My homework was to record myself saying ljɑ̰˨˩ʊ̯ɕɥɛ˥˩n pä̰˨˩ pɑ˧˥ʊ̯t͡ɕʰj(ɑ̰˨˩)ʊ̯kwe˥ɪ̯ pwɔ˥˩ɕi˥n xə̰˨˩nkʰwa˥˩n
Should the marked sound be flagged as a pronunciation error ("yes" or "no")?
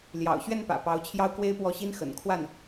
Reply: yes